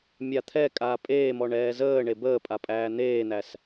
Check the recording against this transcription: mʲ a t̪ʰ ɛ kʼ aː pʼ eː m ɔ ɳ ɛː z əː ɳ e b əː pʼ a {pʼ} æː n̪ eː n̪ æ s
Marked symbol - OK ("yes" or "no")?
yes